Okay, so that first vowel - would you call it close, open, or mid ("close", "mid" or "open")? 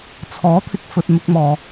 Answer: mid